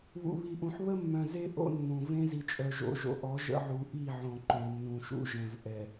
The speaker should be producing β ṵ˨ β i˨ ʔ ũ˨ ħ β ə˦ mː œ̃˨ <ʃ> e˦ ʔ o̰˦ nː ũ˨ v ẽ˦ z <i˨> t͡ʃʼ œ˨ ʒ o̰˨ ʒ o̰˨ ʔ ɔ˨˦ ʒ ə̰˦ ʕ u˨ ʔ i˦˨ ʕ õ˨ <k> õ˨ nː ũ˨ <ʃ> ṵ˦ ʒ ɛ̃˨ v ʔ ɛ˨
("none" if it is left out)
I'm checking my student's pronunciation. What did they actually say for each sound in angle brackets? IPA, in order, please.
z, i˨, ǃ, ʃ

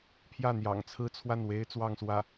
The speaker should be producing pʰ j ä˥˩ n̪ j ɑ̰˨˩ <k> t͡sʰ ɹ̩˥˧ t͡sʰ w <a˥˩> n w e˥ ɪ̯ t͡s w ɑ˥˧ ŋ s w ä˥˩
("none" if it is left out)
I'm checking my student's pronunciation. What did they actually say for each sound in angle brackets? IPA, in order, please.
ŋ, a˥˩

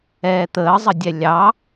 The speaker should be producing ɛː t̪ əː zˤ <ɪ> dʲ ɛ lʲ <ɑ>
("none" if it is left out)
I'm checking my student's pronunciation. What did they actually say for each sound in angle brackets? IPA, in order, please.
ə, ɑ

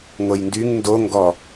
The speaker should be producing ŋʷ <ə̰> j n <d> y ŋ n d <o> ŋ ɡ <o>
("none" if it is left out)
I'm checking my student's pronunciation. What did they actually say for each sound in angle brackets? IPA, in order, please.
ə, d, o, ɔ

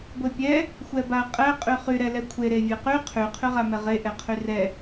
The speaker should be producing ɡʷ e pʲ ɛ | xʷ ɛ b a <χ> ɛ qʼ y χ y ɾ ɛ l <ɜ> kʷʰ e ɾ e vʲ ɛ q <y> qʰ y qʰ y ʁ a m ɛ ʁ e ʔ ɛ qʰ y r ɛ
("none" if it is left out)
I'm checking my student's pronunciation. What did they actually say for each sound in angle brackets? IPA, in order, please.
qʼ, ɛ, y

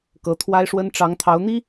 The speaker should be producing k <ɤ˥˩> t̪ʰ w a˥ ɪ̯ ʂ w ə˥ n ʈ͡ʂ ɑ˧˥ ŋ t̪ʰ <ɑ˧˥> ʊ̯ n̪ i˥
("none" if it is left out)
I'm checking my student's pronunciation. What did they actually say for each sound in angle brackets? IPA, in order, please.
ɤ˧˥, ɑ˧˥

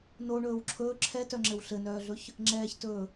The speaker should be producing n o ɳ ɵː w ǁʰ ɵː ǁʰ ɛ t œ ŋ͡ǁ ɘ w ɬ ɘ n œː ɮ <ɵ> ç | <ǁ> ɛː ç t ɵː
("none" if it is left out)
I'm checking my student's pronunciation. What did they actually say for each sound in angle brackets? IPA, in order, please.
ɵ, ŋ͡ǁ

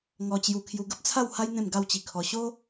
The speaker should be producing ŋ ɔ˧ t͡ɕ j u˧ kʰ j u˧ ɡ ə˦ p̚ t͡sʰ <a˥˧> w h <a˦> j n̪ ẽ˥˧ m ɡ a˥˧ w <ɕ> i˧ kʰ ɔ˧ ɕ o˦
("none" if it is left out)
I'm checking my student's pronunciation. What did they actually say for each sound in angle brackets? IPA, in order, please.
a˥˧, a˦, t͡ɕ

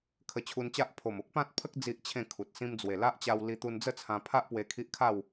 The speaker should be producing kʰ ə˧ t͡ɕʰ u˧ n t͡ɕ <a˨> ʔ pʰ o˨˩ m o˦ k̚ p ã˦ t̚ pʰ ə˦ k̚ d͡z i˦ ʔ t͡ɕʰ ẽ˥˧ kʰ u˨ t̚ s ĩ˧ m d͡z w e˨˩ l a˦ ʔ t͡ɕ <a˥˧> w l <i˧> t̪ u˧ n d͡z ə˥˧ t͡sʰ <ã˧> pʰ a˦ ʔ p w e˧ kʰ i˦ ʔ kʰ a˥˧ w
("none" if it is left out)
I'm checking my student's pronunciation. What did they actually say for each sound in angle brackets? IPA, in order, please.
a˦, a˧, i˧, ã˧

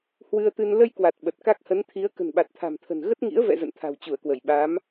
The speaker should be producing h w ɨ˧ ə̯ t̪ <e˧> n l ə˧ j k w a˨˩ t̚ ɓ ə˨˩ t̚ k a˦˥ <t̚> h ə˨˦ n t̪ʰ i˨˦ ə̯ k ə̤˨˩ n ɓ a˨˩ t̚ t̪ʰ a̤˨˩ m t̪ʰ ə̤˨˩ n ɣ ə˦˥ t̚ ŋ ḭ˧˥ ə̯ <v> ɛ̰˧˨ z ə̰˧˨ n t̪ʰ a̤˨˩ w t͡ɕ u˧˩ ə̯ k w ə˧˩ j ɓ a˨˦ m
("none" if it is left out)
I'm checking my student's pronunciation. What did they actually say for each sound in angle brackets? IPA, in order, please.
ɨ˧, k̚, v

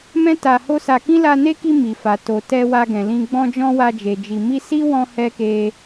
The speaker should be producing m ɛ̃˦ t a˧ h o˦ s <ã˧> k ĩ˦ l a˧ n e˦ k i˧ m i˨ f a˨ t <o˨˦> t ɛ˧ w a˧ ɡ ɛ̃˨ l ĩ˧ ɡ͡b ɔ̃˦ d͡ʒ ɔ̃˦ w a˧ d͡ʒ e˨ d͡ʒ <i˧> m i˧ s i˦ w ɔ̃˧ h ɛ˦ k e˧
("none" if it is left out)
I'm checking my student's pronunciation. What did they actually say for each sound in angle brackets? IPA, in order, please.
a˧, o˨, i˨

